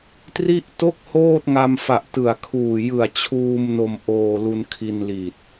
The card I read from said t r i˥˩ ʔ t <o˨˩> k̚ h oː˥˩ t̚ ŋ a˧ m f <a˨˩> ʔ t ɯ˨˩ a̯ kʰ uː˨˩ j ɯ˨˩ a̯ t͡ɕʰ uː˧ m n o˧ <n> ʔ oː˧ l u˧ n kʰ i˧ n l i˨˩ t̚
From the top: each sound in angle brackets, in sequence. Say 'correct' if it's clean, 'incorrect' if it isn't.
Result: incorrect, correct, incorrect

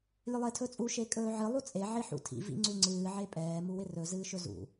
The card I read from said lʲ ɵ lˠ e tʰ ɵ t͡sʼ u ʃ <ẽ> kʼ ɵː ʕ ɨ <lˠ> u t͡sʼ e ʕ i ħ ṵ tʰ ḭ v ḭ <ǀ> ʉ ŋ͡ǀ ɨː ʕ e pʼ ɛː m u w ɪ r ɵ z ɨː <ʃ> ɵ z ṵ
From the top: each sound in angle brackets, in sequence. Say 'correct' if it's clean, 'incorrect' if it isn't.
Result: incorrect, correct, incorrect, correct

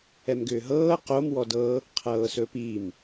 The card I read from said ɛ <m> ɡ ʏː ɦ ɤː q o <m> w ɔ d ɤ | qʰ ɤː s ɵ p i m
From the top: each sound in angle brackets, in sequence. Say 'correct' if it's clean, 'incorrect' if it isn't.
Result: correct, correct

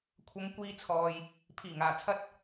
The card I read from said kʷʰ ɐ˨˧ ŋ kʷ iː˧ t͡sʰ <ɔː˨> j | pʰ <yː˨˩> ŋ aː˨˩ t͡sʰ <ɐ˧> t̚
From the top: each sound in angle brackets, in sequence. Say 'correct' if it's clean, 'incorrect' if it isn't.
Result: correct, incorrect, correct

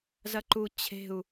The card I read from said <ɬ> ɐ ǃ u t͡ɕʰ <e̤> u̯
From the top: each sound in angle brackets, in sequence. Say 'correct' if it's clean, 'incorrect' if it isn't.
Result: incorrect, correct

